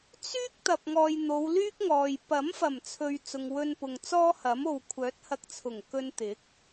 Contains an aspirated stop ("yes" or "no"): yes